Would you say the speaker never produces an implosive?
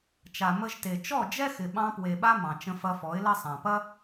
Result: no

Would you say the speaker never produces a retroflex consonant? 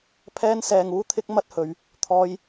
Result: yes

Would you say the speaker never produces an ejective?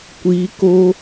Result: yes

